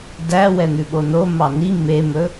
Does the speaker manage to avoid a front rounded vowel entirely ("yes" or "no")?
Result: yes